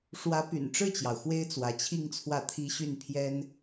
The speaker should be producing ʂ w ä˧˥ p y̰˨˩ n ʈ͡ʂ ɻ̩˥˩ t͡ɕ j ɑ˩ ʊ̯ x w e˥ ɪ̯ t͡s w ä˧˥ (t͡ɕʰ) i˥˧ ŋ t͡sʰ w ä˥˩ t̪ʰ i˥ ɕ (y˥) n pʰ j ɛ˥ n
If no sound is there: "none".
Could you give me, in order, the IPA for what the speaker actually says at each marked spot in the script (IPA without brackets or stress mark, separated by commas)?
t͡ɕʰ, y˥˩